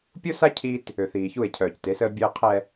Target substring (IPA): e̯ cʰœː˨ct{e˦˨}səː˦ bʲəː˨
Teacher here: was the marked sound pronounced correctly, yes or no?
no